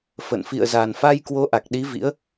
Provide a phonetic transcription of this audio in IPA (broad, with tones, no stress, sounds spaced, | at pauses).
f ə̰˧˨ n f ḭ˧˨ ə̯ z a˨˩ n f a˧ j k w o˨˦ ʔ a˨˩ k̚ ɗ i˨˦ v ḭ˧˥ ə̯